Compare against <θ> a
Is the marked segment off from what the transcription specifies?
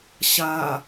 yes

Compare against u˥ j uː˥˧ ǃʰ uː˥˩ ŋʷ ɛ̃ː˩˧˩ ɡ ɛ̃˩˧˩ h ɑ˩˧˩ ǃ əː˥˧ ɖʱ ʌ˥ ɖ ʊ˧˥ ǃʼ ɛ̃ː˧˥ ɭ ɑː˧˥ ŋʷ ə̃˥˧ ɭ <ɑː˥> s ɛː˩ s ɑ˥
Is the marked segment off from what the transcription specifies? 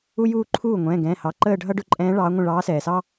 yes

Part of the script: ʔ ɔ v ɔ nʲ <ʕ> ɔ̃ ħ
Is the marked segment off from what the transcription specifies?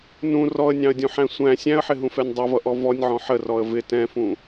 no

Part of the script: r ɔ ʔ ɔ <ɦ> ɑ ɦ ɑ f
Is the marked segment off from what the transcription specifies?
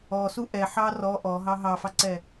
no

